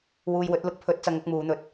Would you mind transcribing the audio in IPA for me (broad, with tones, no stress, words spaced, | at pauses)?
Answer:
wuː˧jwɵ˨˥t̚ lʊ˨˥k̚pʰɵ˨˥t̚ t͡sɐ˨˧ŋʊ˧k̚ muː˨˧n̪ɵ˧t̚